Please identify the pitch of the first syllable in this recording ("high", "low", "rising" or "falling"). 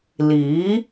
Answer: rising